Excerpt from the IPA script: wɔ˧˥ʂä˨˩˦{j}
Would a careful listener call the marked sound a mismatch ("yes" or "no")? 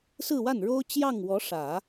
yes